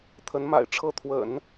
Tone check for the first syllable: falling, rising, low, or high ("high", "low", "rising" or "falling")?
rising